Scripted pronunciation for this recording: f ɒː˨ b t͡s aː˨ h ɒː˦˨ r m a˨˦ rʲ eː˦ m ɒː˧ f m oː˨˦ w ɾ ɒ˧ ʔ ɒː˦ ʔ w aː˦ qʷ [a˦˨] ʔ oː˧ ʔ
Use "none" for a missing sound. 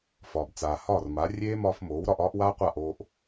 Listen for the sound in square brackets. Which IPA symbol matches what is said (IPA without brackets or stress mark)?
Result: a˦˨